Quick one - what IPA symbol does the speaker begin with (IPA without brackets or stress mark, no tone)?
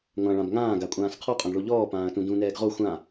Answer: ŋʷ